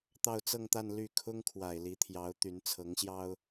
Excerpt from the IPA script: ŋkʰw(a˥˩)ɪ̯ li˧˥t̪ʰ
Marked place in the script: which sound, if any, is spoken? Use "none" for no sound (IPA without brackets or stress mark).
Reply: a˨˩